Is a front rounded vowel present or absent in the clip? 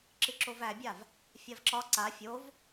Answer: absent